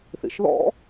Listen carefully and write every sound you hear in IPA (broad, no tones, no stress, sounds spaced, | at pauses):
θ ḭ ʃ ð ɔ̰